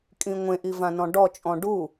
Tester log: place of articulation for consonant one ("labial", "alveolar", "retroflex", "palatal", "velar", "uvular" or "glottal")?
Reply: velar